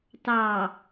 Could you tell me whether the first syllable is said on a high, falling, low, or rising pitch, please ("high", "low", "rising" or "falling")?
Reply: low